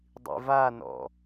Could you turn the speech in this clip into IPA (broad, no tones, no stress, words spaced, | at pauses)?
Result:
dˤḭvanɔ̰